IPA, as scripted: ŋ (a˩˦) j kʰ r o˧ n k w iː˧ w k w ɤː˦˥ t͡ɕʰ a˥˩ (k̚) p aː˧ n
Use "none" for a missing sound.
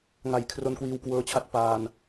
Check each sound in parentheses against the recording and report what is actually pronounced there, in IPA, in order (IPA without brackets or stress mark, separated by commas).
a˩˦, t̚